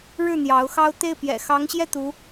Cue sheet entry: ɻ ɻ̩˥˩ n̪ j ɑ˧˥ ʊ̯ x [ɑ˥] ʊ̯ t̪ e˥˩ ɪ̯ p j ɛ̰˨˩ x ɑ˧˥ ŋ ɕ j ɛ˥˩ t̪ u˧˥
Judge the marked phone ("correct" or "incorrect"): correct